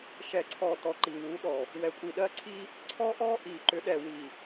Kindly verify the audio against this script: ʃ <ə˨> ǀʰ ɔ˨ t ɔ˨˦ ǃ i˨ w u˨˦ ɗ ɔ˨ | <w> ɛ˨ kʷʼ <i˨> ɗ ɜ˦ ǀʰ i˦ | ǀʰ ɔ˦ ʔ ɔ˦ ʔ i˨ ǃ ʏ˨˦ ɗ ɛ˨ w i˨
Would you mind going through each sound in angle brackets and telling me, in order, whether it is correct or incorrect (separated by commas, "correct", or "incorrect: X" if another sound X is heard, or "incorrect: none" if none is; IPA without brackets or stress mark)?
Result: incorrect: ɛ˨, correct, correct